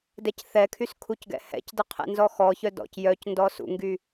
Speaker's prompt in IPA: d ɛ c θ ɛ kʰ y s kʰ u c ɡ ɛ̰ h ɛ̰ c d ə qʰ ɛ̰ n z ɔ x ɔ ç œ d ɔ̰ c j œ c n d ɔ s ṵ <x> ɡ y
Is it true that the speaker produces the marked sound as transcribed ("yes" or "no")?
no